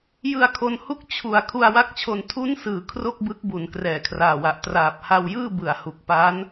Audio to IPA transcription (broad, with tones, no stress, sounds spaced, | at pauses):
j ɯ˧ a̯ kʰ o˧ n h u˥˩ k̚ t͡ɕʰ u˩˦ a̯ kʰ u˧ a̯ w a˦˥ k̚ t͡ɕʰ o˧ n tʰ u˦˥ n s ɯː˩˦ kʰ r o˥˩ k̚ b ɯ˦˥ k̚ b u˩˦ n k r ɛː˨˩ kʰ r aː˨˩ w a˨˩ ʔ t r aː˨˩ p̚ h a˧ w j ɯː˥˩ b ɯ˨˩ a̯ h u˨˩ k̚ p a˦˥ n